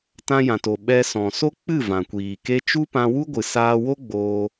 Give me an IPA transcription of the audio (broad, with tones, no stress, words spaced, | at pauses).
tã˧jã˨to˨ ɓɛ˧ sɔ̃˨so˦k͡pɨ˦˨ vã˨kʷiː˨ke˦ t͡ʃu˦pã˧wu˦ɡʷɨ˨ saː˧wo˦ ɡ͡boː˧